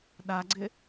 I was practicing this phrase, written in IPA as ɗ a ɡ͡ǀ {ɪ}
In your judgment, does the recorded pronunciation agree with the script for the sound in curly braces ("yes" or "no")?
yes